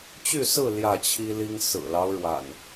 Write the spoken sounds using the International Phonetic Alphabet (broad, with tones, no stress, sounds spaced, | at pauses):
t͡ɕ y˥˨ s ɹ̩˥˨ l j ä˥˨ t͡ɕʰ i˦ l i˦ ŋ s ɹ̩˨˩ l ɑ˦ ʊ̯ ɻ w a̰˨˩ n